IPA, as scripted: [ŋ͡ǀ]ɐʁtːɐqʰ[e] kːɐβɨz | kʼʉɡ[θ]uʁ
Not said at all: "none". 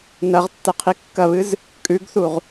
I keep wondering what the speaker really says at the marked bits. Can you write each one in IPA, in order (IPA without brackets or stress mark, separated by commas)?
n, i, θ